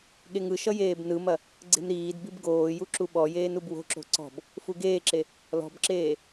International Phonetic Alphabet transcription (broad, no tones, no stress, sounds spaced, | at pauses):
ɠ e ŋ ɯ ʃ ʌ j eː b n ɯ m ɐ | ɡ͡ǀ e̤ m ɾ iː d b i b ɡ oː j u ǁ u ɓ ɔ j eː n u b w o̤ ǁ o̤ ǀ ɔ̤ b | f u ɡ eː ǁ e | l ɔ̤ b ǁ eː